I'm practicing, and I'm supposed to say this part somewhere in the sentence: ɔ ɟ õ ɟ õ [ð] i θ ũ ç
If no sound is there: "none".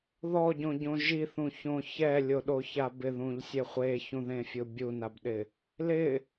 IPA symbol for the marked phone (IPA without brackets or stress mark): ʒ